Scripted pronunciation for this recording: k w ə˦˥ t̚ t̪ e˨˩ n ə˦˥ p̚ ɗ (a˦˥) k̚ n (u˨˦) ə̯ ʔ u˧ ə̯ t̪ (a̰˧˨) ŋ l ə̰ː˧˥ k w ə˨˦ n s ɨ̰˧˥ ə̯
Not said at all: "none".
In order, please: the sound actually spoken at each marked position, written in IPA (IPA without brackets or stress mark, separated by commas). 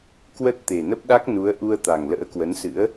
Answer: a˦˥, u˨˦, a˨˩